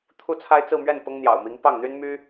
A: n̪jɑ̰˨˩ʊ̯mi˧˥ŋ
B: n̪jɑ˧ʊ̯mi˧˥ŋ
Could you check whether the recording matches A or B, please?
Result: A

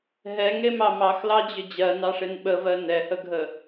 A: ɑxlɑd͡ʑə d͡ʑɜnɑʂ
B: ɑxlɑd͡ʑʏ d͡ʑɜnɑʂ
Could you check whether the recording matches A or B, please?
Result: B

